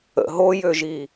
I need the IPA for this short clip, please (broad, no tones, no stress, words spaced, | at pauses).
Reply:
ə̰ ɦojøʒi